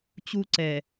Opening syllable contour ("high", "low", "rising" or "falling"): high